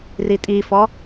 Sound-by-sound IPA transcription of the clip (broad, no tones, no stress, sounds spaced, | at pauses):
r i tʼ i f ɔ